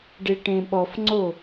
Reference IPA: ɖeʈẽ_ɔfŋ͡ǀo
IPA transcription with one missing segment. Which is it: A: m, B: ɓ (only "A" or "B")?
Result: B